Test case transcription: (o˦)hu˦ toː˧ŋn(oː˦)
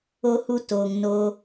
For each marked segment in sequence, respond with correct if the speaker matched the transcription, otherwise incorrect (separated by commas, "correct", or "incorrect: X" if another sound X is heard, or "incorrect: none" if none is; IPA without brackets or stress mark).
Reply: correct, correct